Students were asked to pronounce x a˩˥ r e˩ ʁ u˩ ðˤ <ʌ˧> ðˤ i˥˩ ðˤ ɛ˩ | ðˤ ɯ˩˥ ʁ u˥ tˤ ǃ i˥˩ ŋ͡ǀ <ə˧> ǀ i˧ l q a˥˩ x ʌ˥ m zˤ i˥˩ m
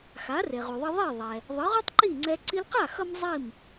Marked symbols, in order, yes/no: yes, no

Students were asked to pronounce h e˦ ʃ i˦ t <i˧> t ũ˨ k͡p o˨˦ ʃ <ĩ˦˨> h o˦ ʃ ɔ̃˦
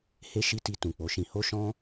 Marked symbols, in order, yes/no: yes, no

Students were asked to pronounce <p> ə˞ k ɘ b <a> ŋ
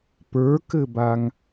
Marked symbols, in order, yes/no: yes, yes

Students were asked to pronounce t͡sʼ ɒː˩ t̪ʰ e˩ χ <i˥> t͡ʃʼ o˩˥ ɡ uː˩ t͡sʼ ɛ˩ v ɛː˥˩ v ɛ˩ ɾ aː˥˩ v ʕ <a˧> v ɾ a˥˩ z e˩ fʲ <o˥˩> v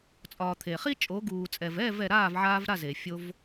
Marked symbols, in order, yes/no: yes, no, no

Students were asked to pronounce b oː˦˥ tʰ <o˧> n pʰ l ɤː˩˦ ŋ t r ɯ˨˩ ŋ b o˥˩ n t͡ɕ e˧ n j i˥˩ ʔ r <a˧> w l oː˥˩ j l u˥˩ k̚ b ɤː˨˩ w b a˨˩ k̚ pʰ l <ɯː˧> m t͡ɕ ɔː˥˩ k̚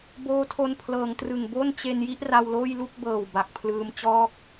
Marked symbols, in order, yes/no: yes, yes, yes

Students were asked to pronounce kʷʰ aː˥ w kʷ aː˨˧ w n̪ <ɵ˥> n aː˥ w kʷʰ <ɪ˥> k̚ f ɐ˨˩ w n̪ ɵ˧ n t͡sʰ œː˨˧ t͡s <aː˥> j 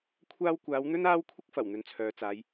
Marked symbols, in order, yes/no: yes, yes, no

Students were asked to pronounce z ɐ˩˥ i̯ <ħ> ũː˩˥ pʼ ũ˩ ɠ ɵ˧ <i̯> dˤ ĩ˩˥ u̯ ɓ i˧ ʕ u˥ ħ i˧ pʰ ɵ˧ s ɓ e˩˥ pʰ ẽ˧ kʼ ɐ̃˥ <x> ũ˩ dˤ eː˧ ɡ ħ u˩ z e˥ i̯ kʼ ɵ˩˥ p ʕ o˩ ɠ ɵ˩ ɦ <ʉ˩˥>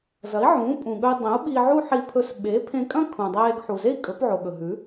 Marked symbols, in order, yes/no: no, yes, no, yes

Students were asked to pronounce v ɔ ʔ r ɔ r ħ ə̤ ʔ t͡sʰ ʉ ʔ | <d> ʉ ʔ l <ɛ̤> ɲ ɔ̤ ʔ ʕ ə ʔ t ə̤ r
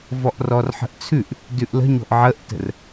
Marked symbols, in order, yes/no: yes, no

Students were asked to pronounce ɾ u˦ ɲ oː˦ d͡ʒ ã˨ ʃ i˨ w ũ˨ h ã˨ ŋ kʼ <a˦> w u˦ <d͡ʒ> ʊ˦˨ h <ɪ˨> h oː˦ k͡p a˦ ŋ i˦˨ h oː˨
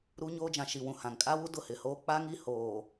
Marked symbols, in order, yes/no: yes, no, yes

